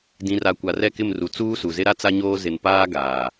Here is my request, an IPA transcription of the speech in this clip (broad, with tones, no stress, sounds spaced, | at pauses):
d ĩ˨ r a˨ kʷ a˨ r ɛ˦˨ k ɪ˦˨ m r u˨ t͡s uː˦ s u˨ z ɪ˦ ɾ a˦ t͡s a˦ ɲ oː˦ z ɪ˨ n p aː˦ ɡ aː˨